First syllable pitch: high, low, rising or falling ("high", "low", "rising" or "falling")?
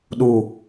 low